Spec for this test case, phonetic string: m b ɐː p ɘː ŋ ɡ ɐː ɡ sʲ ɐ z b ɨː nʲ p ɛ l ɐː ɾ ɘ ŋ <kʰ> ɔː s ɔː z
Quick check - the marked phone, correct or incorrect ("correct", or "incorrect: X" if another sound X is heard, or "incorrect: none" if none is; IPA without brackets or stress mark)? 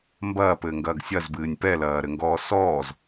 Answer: incorrect: ɡ